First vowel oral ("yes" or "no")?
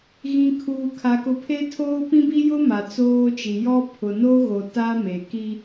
no